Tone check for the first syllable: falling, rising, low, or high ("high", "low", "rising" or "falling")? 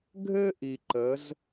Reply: high